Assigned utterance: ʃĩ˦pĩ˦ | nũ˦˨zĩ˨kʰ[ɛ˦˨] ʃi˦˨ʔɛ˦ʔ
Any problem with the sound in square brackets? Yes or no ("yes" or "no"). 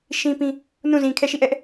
no